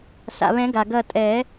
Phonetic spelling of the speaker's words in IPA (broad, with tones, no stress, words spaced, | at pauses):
sa̰˩βɛ̃˨˩˦ɡa˩ ɡɐ˧˩tʼɛ˨˩˦